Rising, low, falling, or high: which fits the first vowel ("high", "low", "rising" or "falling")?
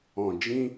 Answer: low